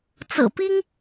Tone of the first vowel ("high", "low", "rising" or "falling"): low